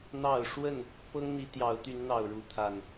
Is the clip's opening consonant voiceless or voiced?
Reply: voiced